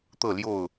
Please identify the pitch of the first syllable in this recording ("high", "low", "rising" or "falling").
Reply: falling